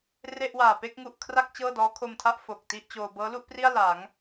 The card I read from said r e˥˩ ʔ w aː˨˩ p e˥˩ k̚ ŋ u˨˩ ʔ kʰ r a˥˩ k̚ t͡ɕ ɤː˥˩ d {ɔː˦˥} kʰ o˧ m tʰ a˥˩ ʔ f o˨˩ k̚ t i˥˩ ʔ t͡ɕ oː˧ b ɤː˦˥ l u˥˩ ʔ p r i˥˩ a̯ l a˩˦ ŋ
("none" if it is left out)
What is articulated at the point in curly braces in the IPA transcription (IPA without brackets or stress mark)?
ɔː˦˥